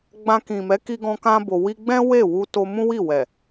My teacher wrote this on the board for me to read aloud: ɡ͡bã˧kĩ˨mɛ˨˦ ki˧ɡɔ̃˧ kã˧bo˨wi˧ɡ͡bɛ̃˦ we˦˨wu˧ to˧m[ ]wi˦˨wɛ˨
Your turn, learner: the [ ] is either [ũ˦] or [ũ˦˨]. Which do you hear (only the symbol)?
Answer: ũ˦